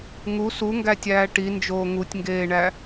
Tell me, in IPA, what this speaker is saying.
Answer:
ŋu suŋɡætʲæː ʈind͡ʒoː ŋutʲŋɡeːɳæ

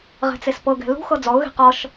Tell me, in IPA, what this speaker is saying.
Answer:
ʁɛ̤t͡sespɤɡɛ̤ lṳxɤ d͡zɔʊ̯ɣe̤ qɔʃ

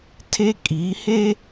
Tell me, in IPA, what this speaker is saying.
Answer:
tʰe˦kʼi˨˦he˦

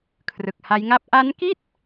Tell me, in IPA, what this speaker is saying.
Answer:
kʰrɯ˨˩k̚ha˦˥jŋa˥˩p̚ ʔa˦˥nki˥˩t̚

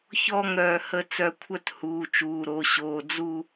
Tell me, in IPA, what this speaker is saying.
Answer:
çɔ˥˧ŋ ɾœː˧hə˥˧t͡sœ˧ kʷʰœ˥˧thuː˩˧˩ t͡ʃuː˩˧˩ɾo˩˧˩ɕoː˩˧˩ d͡zu˥˧

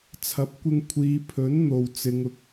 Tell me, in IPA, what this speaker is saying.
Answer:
t͡sʰɐ˨˥p̚kʷɪ˧ŋ kʷʰiː˨˧pʰɵ˨˥n n̪o˨wt͡sɪ˨˧ŋ ʊ˨k̚

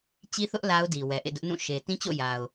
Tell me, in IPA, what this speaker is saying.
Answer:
t͡ɕi˦θʊ˦ʔ la˦ʊ̯di˨ wɛ˨ʔḛ˦˨dʊ˦ʔnũ˦˨ ʃe˨ tĩ˦t͡ɕo̰˦˨ ja˨ʊ̯

